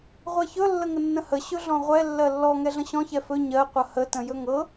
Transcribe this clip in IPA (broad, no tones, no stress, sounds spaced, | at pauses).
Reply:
ʁʷ ɛ ç ɵ lː ə ŋ ə nː ə̃ h ə ɕ ɵ ɮ ɔ̃ ʁʷ ɛ lː ɜ lː ɔ ŋ ɛ ɮ ə̃ ɕ ɔ̃ ç ɛ f ɵ ɲ ɜ qʷ ʌ h ə t ə̃ j ɵ ŋ ɤ